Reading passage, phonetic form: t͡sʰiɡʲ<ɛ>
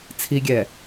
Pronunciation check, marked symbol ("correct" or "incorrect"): correct